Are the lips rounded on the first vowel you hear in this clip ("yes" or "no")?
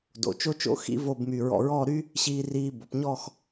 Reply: yes